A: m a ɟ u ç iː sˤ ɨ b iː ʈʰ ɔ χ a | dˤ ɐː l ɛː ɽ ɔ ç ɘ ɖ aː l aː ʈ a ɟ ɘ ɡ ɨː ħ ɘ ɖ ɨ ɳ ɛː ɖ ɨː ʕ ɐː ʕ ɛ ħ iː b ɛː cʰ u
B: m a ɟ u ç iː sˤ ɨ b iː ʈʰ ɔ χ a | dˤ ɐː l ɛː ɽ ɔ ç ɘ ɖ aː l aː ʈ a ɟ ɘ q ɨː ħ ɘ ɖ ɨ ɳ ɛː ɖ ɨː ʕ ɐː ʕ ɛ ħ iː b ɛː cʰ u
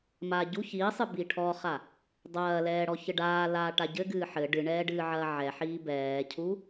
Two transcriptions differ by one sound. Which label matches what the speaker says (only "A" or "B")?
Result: A